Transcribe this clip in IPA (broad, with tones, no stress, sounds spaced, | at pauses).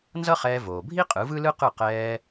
n z ʌ˥ χ ɛː˧ v oː˩ bʱ i˥ qʼ ɯ˩˥ v ɯ˥ l ɯ˥ q ɯ˥˩ q ɛː˧